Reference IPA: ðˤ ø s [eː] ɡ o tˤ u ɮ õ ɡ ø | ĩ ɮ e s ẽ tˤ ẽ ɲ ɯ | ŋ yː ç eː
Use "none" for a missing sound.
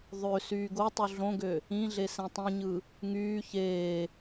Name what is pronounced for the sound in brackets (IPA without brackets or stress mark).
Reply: yː